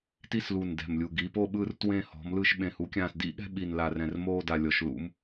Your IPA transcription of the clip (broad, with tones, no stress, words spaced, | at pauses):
ti˦˨slu˨˩ndɛ̤˨˩mlʲu˨˩ ɡi˩˧ po˦˨ɓɯ˦˨rtwẽ˦˨ hɔ̤˩˧mlɯ˦˨ʃɓẽ˨˩ hu˩˧kʲãː˨˩sdḭ˦˨ɠɛ̤˦˨ ɓi˨˩nla˨˩ rɛ̃˨˩rmoː˦˨da˨˩lʲɔ˩˧ʃ lṵ˩˧m